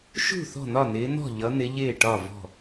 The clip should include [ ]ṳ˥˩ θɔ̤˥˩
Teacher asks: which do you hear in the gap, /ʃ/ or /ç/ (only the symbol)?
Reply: ʃ